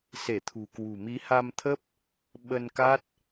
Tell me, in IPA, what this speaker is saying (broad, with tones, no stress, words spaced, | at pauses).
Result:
se˧˩t̪ʰṳ˨˩kwṳ˨˩ mi˨˦ha˧mt̪ʰə˦˥p̚ | ɓə˧nka˦˥t̚